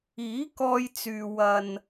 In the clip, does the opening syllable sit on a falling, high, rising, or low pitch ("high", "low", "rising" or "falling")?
rising